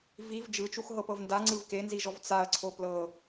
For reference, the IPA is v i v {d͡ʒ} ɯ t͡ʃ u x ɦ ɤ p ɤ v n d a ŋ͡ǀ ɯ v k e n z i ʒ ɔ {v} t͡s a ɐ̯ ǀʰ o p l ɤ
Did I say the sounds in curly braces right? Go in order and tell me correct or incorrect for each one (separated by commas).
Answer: correct, correct